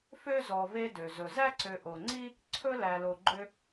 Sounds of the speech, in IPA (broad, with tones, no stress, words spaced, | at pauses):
fø˥zɔ˨ve˦dø˩ zɵ˩zæ˥ǀø˨ ʔo˩ŋ͡ǀi˥ | ǀʰɵ˥ læ˨lo˨ɡ͡ǃø˦